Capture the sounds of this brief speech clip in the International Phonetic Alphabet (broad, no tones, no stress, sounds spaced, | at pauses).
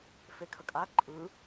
f e kʰ ə kʼ a ǃʼ ɯ